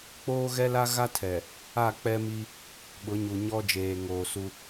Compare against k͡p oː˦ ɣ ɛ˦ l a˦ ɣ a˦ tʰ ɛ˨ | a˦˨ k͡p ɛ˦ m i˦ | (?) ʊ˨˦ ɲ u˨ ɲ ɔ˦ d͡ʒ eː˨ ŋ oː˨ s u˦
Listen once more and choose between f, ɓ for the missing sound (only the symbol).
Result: ɓ